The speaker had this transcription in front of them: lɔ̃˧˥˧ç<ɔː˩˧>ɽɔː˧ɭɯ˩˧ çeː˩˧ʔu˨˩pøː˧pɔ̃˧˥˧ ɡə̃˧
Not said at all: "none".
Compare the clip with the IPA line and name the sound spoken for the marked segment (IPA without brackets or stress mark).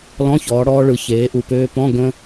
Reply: ɔː˩˧